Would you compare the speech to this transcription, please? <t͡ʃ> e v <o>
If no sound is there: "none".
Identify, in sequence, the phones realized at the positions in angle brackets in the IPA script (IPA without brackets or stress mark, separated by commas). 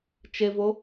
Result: t͡ʃ, o